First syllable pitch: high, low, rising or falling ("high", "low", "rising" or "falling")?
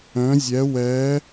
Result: rising